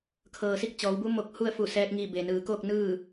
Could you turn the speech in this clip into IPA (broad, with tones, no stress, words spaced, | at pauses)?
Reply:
kʰɤː˩si˥˨k̚t͡ɕɔː˩˧wbu˧˥ mo˧k̚hu˥˨ə̯ fu˧˩ sɛː˧k̚ŋi˧˩be˩nɯː˩˧ ko˥˨k̚ nɯː˥˨